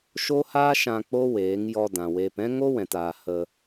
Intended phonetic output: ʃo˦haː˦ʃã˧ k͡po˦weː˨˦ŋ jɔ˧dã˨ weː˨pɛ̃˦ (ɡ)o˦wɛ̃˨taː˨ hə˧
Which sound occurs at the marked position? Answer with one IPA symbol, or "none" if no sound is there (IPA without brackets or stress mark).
ŋ